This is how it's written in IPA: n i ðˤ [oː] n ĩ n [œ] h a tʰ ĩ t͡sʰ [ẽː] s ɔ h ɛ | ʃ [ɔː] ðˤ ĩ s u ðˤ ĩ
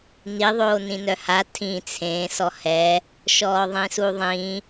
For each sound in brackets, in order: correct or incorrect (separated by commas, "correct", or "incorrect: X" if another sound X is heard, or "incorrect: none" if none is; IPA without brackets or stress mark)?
correct, correct, correct, correct